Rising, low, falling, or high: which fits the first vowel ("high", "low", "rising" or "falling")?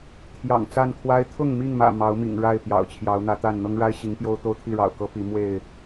low